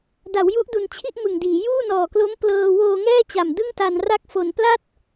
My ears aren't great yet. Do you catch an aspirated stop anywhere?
yes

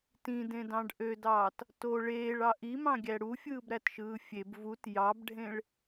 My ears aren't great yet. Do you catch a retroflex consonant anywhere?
yes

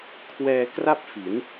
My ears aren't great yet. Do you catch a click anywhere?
no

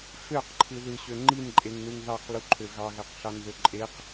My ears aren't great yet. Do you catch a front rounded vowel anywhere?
yes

